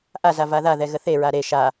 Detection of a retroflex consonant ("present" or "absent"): absent